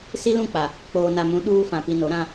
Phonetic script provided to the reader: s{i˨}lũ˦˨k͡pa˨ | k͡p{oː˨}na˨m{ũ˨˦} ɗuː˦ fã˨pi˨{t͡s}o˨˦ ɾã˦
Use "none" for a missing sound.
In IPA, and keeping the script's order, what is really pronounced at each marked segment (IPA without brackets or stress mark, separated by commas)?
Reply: i˦, oː˨, ũ˨˦, n